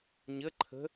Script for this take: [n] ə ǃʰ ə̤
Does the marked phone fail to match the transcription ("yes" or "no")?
yes